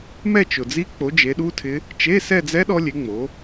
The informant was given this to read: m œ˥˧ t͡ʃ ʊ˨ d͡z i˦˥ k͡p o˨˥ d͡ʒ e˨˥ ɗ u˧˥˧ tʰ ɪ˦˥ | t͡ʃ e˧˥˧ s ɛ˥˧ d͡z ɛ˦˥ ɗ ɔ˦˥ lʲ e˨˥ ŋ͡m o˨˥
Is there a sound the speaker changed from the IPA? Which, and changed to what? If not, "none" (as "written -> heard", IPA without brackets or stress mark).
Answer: œ˥˧ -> ɛ˥˧